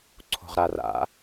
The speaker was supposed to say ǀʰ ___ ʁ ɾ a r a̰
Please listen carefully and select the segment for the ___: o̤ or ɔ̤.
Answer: o̤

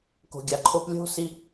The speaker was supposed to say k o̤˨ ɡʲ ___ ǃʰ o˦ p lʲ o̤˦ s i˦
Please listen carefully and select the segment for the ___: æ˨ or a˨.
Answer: a˨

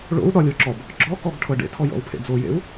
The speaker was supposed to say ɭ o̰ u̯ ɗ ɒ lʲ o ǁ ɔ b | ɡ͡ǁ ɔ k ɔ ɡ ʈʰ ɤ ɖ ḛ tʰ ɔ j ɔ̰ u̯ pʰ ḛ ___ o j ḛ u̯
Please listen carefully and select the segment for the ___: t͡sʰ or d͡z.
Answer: d͡z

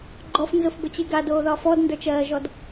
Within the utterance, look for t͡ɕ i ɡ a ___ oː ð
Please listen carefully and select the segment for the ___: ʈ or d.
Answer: d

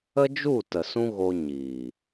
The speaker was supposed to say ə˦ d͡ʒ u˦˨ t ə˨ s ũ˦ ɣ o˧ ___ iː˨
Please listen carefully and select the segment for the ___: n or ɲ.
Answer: ɲ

